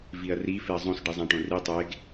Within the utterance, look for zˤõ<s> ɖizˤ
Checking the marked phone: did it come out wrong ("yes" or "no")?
no